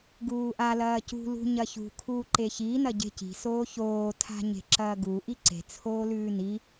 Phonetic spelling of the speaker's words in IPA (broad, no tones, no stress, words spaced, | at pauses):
ɡuːʔa lɐːcṳ lṳɲɐçṳ kʰuːǃeçi nɐɟe̤ci̤ soːçoː tʰa̤ɲe̤ǁɐːɡu ʔiǀe̤ t͡sʰoːlʉːni